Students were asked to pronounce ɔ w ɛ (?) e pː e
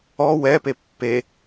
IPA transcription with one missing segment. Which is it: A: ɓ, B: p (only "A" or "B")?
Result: B